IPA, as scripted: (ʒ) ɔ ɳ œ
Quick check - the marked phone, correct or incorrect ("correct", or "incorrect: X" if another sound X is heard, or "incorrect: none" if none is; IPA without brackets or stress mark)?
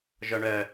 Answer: correct